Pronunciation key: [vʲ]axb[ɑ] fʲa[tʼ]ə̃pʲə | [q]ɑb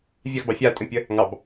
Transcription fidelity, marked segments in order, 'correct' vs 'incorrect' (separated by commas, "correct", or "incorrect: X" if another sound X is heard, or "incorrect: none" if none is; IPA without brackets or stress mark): correct, correct, correct, incorrect: ŋ